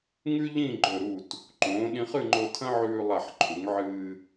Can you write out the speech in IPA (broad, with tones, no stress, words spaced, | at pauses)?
ŋʉ˥ ʎĩ˥˧ɡ͡ǃɵ˧˩ ɾu˧˩t | ǃõː˩˧ɗĩ˧χ ɨ˥˧ŋ͡ǃo˧tʰɐ̃˥ʕʉː˧ lˠa˧˩ħǃʰu˩˧ŋʕɨː˧